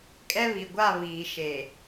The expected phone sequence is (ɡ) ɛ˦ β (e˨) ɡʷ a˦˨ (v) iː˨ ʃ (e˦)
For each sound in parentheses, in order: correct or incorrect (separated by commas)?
incorrect, incorrect, incorrect, incorrect